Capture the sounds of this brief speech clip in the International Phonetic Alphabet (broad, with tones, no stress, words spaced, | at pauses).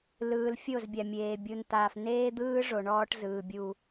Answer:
lɯː˨l fʲo˦˨zbʲa˨mʲeː˨ bʲu˨nt̪aː˨f neː˦d̪ɯː˦ ʐo˨ɳɔː˦ʈzɯː˨bʲu˦